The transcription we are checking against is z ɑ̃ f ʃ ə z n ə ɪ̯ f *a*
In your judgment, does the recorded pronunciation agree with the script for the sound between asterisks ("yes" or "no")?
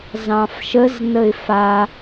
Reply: yes